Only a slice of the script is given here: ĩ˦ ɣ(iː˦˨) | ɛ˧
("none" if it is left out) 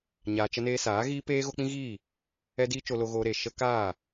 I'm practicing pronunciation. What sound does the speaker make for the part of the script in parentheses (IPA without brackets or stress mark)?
iː˦˨